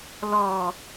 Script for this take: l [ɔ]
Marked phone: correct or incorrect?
correct